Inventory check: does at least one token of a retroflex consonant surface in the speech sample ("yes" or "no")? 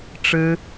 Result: yes